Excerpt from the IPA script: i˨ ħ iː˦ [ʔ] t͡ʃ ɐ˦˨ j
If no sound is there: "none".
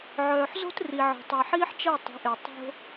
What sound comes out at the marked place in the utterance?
ħ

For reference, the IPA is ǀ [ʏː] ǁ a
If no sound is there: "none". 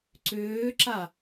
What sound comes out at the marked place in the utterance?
ʏː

